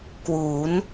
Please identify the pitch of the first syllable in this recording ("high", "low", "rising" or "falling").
rising